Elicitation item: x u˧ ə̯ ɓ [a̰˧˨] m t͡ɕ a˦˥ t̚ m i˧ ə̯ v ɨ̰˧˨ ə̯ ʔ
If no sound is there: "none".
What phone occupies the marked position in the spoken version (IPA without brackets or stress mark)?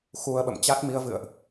ə̰˧˨